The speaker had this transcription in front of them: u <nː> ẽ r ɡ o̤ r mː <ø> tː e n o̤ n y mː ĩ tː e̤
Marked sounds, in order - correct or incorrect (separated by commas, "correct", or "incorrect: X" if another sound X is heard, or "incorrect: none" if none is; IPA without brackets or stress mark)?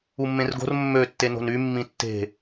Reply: incorrect: mː, correct